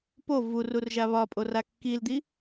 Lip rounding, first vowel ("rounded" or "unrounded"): rounded